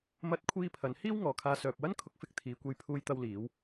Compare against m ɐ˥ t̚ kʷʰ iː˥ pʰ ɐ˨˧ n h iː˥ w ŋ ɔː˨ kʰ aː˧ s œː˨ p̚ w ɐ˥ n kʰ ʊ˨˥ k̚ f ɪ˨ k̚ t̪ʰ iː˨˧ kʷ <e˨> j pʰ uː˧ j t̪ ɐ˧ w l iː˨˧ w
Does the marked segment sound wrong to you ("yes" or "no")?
yes